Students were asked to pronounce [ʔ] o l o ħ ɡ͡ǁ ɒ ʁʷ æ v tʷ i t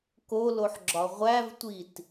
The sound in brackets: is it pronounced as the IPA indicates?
no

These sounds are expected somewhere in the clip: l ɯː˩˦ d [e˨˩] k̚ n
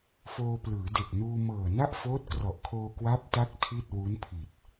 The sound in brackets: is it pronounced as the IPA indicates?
yes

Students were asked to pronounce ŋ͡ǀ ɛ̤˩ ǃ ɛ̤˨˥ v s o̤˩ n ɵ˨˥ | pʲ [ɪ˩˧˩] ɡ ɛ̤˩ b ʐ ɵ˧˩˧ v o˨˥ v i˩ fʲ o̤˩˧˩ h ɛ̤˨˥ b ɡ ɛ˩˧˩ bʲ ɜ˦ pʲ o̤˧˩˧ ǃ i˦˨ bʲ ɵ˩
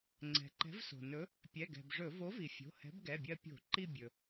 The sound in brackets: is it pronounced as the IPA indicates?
no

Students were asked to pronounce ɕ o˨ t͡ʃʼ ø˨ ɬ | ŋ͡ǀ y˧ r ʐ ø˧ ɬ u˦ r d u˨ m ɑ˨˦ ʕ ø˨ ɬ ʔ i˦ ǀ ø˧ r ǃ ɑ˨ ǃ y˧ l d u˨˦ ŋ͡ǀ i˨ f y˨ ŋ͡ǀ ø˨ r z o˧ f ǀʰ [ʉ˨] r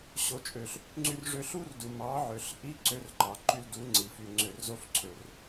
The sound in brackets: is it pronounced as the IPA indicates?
no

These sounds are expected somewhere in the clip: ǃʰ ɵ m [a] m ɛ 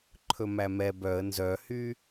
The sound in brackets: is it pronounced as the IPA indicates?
no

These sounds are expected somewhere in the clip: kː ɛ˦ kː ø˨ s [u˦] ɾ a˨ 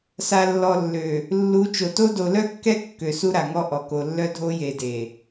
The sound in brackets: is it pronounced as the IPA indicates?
yes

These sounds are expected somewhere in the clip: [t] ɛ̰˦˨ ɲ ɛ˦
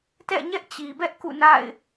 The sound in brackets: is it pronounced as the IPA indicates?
yes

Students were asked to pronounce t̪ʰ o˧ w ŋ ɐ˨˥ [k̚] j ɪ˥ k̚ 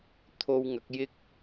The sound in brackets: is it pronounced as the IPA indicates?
yes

